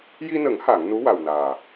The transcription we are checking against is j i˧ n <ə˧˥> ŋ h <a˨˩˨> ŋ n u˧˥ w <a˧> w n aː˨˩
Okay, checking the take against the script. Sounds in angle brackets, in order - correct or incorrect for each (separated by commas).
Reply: incorrect, correct, incorrect